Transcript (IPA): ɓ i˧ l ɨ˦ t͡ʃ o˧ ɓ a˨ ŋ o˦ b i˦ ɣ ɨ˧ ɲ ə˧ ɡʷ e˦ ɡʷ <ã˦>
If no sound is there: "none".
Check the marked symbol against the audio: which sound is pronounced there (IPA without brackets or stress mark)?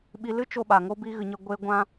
ã˦